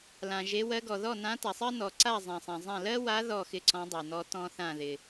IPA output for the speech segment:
l ã˨ ʒ e˧˥ w ɜ˧˥ ɡ ɔ˨ ð ɔ˥˨ n ã˧˥ t a˨ sˤ ɜ˥ n ɔ˨ ǀ a˥˨ zˤ ã˨ sˤ ã˨ zˤ ã˥˨ l ɜ˥ w a˧˥ ð ɔ˥˨ x ɪ˥˨ ǀ ɔ̃˧˥ dˤ e˨ n ɔ˧˥ t ɔ̃˥ θ ã˥˨ ð ɪ˨

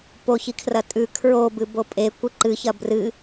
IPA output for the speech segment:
p o ç i kʰ r ɐ tʼ ʉ kʰ ɹ o b ɨ b o pʼ e kʷ ɨ ǃ ɨ ç ɐ b r ɨ

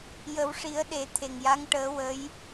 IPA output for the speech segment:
j ə˨˩˦ w ʂ i˨˩˦ ə̯ ɗ e˨˩˦ t̪ʰ e˨˩ ŋ j a˧˥ ŋ ʈ əː˧˥ w ə˧˥ j

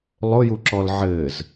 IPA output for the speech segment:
lˠ ʊ j u ǁ ɔ l ʕ ɘː z

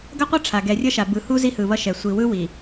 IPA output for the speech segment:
ɡ ʌ˦ qʷ ʌ˦ ʈ͡ʂʰ a˨ ɡ ɛ˨ rʲ ʌ˦ ʃ a˨ b ɯ˨ h u˦ z i˦ h ɯ˨ β ʌ˦ ʃ ɛ˨ sʷ i˨ w ɯ˦ w i˨

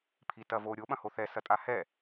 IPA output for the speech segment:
pʰ i t ɐ v o ɾʲ o ɓ ɐ̃ h o θ ɛ s ɐ tʼ a h ɛ

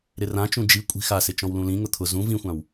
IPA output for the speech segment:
ɾ ɪ r ã t͡ʃ ũ d͡ʒ i kʷʼ i̤ x a s ɪ t͡ʃ ɔ̃ w l ũ l ĩ ŋ ʊ t̪ʰ ʊ z ũ v ĩ xʷ ã w

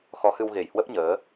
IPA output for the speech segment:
x ɔ˨˦ h ɨ˧ w ɣ e˧˩ j h w ə˦˥ p̚ ɲ əː˨˦

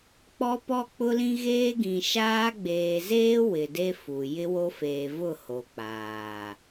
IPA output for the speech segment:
k͡p ɔ˦ p ɔ˦ k͡p ʊ˦ l ĩ˦ ɣ eː˦ ɡ ĩ˨ ʃ aː˦ ɡ͡b eː˨ z eː˦ w ɪ˨ d e˦ f u˨ j ɪ˦ w o˦ f eː˨ v ʊ˦˨ h o˨ k͡p aː˨

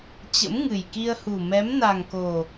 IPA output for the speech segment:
t͡ɕ ə̰˧˥ m ŋ ɨ˨˩ j k i˧ ə̯ h u˨˩ m ɛ˨˦ m n a˨˩ ŋ k o˨˩

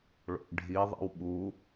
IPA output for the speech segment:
ɭ o̰ ʔ ɖʱ i ðˤ ḭ w ɓ u

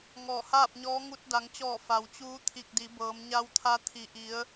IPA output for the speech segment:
ŋ ɔː˧˩ h aː˥˨ p̚ ɲ ɔː˧˥ ŋ u˧ t̚ d a˩˧ ŋ t͡ɕ ɔː˧˩ f a˩ w t͡ɕ uː˧˥ t̪ʰ i˧˩ k̚ d i˩˧ b ɤː˩˧ m ɲ a˧ w t̪ʰ a˧ t̪ʰ i˩ ʔ i˩˧ ə̯

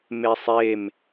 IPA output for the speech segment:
m e sˤ e m

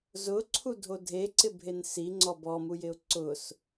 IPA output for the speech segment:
z ʊ ǀʰ u dʱ o dʱ e ǀ ɪ bʱ e n s i ŋ͡ǀ ɔ b ɔ m u j ɪ ʊ̯ ǀ ʊ s

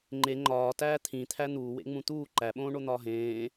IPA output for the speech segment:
ŋ͡ǃ e ŋ͡ǃ ɒː t æː t̪ʰ ĩ t̪ʰ æ n̪ uː w ḛ ŋ͡m ũ t̪ uː ǃ æ ɓ õː ɳ o n̪ ɒː ɦ ẽː

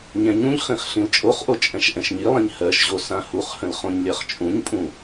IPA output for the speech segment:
ɲ ɛ̃ ɲ ũ ʎ χ ĩ χ ɬ ĩ l t͡ʃʼ o χ ʔ o t͡ʃʼ ɛ̃ ʃ ʔ ɛ̃ ʃ ɲ i lˠ ĩ ɲ h ɜ ʃ ʑ o s ã h u χ h ə̃ l χ õ ɲ lʲ ɜ χ t͡ʃʼ ũ ɲ pʼ ũ

